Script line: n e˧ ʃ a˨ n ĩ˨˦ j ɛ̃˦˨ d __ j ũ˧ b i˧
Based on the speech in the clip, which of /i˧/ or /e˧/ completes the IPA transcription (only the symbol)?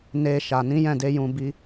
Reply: e˧